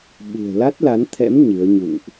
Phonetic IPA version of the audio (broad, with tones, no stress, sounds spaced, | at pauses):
ɓ ṳ˨˩ ə̯ l a˦˥ t̚ l a˨˦ n t̪ʰ ɛ̰˧˥ m ɲ ɨ˨˦ ə̯ ɲ ṵ˧˨ ŋ ʔ